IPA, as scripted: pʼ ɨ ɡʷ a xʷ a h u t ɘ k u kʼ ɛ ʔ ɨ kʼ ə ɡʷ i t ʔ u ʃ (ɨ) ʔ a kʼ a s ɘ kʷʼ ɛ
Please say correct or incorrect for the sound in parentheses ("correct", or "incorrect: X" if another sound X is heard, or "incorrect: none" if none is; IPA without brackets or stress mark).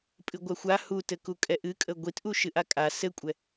correct